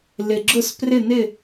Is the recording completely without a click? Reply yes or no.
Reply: no